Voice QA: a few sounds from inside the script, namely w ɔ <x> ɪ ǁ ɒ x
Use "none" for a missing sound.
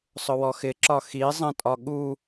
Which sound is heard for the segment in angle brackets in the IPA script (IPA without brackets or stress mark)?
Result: x